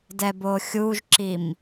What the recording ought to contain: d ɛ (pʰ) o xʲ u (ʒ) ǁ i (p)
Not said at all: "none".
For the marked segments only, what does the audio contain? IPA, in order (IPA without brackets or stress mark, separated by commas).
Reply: b, ʒ, m